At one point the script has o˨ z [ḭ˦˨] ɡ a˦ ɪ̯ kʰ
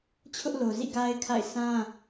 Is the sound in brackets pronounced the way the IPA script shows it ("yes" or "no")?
yes